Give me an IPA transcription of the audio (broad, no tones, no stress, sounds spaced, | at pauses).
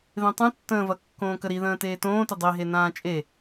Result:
ð ẽ tˤ ũ tː ə̃ː v ɐ kː õː k ə ɾ i ð ə̃ː t eː t õː t ɪ dˤ i ɦ e n ãː t͡ʃʼ e